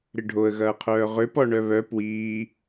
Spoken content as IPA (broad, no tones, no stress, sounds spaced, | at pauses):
ɾ ɪ ɖʱ o ə̯ ɣ ɐː qʰ œː ʁ ʏ p ɔ ɳ œ β œ p w iː